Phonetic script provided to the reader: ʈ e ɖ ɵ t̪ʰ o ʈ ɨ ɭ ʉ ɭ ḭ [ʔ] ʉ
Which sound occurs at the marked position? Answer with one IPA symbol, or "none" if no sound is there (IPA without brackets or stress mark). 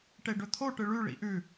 ʔ